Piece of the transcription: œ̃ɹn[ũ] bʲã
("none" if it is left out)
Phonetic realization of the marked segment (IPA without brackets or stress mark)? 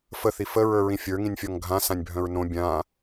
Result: õ